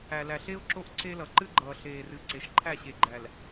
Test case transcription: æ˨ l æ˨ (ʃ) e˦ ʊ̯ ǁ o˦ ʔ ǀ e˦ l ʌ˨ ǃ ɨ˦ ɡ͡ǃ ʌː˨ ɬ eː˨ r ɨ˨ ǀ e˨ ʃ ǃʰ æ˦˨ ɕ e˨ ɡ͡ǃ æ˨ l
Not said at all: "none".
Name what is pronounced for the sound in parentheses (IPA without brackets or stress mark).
ɬ